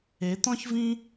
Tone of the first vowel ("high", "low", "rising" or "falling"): rising